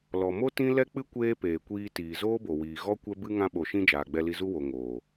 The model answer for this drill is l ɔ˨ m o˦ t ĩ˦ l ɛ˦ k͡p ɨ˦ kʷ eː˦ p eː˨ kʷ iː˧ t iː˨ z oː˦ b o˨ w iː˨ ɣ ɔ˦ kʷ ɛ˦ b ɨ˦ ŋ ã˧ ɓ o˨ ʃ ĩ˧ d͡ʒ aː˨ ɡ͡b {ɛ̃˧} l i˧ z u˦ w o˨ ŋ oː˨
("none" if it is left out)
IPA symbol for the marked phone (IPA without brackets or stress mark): ɛ˧